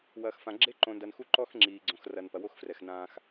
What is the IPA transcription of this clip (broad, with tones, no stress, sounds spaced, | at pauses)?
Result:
w ɐː˨ x f ã˨ ɡ͡ǁ e˦ ǃ õ˨ n d ɐ˨ n x u˦ ǃ ɔ˦ x ŋ͡ǁ iː˨ ɡ͡ǀ õ˨ x r ɐ˨ n p ɐ˨ w o˦ x f r ɛ˨ x n ãː˦ x